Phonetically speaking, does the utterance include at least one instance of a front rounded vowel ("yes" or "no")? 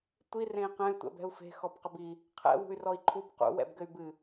yes